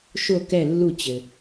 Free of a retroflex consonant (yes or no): yes